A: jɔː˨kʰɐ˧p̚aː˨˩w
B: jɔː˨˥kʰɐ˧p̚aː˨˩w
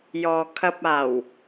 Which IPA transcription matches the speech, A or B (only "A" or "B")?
A